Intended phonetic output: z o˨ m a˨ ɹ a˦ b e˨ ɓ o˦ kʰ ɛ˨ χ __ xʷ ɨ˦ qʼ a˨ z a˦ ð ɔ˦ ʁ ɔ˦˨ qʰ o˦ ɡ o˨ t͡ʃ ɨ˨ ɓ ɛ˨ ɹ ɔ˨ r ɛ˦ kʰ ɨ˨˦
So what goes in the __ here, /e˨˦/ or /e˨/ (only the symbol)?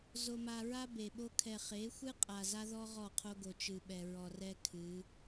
e˨˦